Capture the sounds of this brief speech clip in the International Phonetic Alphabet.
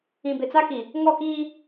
ĩ˨ b ɪ˨ t͡s a˦ k i˨ | ŋ ɔ˦˨ k iː˦

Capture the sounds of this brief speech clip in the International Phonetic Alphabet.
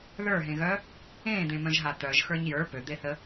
ð ə˞ ɦ ẽ ɣ œ | ẽː d̪ ẽ m œ̃ ʒ ɦ a t̪ œ ʒ x ə˞ ɲ j ə˞ p ø d̪ e θ ə

